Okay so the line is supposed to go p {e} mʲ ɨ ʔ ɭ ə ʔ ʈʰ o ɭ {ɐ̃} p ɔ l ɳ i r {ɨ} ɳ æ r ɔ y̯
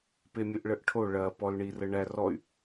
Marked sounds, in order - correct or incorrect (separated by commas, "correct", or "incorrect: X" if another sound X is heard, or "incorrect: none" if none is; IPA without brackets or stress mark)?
correct, incorrect: ɐ, incorrect: ə